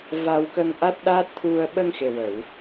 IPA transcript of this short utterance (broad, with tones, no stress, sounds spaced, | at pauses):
v a˧ w k ə˧ ŋ ʔ a˦˥ t̚ ɗ a˦˥ t̚ t̪ʰ u˧ ə̯ ɓ ə˧ ŋ x e˨˩ w ə˨˩˨ w